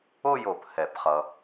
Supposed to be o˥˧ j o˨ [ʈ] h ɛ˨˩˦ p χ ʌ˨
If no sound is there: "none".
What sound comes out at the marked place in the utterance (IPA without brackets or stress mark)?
p